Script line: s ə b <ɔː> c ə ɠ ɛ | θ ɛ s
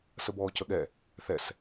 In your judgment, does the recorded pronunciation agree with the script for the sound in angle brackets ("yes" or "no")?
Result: yes